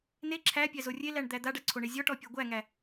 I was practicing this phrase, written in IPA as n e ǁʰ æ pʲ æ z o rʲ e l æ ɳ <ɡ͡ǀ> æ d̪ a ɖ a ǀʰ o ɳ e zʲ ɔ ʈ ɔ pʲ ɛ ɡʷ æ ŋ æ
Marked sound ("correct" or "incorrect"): incorrect